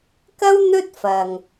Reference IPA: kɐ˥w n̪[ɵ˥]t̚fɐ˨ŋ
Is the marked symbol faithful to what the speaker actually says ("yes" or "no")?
yes